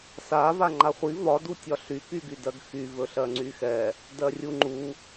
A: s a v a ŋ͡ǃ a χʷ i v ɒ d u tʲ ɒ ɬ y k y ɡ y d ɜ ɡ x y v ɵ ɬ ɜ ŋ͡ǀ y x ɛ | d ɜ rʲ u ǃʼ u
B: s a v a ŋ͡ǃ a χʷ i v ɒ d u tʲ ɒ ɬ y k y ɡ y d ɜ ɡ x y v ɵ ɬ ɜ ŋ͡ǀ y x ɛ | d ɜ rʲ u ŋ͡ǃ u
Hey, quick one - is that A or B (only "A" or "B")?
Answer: B